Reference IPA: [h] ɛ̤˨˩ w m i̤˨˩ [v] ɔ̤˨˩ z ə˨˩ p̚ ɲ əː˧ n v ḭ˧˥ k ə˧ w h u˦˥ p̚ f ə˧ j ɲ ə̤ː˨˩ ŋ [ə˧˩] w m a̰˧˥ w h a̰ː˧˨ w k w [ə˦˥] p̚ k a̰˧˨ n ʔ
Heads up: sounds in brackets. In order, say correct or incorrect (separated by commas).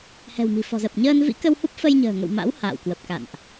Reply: correct, incorrect, incorrect, incorrect